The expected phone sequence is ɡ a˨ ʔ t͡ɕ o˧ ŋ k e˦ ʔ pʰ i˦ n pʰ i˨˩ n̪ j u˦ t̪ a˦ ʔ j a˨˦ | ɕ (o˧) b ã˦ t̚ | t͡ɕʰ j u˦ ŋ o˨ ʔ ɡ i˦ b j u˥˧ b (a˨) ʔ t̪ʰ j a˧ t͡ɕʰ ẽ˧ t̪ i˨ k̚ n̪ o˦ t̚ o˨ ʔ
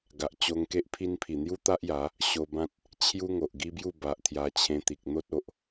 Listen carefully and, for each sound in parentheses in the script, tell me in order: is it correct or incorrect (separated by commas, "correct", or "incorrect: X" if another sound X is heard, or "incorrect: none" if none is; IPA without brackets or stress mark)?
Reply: correct, correct